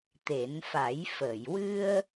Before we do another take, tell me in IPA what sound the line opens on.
t̪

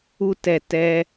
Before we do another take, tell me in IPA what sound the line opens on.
u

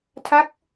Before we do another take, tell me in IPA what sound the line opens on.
tʰ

